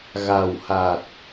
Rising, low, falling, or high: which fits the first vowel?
low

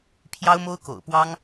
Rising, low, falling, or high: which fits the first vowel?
high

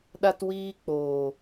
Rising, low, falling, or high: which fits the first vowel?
high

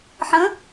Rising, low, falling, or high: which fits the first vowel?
rising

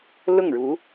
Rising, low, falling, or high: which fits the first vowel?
falling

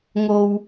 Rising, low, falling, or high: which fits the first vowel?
low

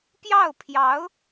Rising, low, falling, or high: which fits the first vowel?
falling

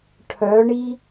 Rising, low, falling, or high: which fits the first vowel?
rising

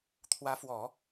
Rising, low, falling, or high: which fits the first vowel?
rising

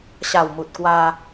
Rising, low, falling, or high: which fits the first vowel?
low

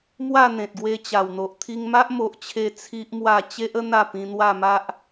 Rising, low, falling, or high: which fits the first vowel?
falling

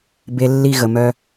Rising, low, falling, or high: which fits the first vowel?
low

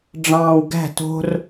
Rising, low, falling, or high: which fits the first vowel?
low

